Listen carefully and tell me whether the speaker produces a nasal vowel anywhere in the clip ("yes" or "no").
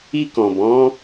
yes